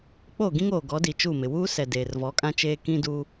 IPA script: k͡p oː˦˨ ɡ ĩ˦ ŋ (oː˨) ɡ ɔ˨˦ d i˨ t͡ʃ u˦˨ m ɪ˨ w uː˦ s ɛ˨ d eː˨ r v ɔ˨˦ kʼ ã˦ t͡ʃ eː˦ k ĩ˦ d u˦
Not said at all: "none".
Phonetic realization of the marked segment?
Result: oː˨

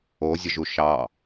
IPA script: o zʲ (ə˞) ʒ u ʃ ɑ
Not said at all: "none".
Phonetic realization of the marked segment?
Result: ə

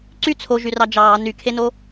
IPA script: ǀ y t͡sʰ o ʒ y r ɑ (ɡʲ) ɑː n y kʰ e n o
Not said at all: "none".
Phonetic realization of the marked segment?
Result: d͡ʒ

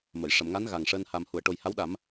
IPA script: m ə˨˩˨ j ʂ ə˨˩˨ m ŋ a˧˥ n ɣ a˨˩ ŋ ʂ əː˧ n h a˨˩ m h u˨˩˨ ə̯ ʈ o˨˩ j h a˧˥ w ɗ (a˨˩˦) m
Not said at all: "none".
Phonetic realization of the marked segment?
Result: a˨˩˦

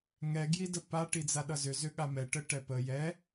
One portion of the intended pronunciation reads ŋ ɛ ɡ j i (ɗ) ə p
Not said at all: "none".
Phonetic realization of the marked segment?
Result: d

